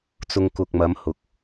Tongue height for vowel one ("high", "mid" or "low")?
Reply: high